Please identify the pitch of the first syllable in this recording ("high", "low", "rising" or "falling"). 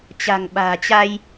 low